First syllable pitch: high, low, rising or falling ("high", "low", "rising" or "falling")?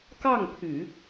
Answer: falling